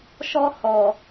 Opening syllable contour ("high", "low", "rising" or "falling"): high